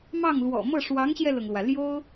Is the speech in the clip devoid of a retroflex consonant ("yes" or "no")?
no